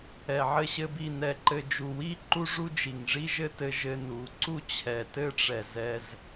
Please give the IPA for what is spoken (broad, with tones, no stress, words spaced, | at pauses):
ɛ˨ʕɘ˧ɕɘ˧bi˦˨ nɛ˨ǃɘ˨d͡ʒu˨wi˦ ǃu˦ʐu˦d͡ʒi˨ŋ ʐi˦ʒɘ˦ tɘ˦ʒɘ˦nu˨˦ ǀu˦ t͡ɕʰɛ˨tɘ˦ʈ͡ʂɛ˨ zɛ˧z